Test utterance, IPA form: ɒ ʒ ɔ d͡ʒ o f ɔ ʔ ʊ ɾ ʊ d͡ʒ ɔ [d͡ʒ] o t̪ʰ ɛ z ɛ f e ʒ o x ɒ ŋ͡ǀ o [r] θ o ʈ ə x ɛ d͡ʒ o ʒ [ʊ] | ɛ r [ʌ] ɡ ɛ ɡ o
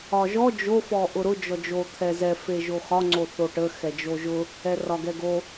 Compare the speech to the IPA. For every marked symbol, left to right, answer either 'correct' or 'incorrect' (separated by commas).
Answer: correct, incorrect, correct, incorrect